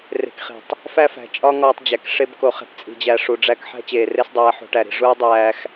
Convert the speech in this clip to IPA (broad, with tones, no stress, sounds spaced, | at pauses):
r e̤˧ k χ i̤˨ tˤ | f æ˦ f æ̤˨ t͡ʃʼ ɒ˦ ŋ ɒː˧ tˤ d͡ʑ æ˨ k ʂ e˦ b k o˧ χ e̤˦ p t͡sʼ i̤˧ d͡ʑ æ˧ ʂ u˨ ɖ͡ʐ æ˦ k ħ æ̤˦ t͡ɕ eː˨ r e˦ s dˤ æː˧ ħ o̤˧ ʈ æ˨ ɾ i̤˧ ʐ u˦ ə̯ dˤ æː˧ x